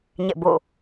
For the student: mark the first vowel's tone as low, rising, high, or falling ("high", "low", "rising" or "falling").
falling